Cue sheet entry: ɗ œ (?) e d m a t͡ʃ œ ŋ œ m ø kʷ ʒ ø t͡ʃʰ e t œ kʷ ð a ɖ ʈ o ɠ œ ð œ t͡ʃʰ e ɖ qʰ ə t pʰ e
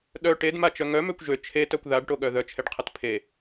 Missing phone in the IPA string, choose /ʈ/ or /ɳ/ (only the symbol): ʈ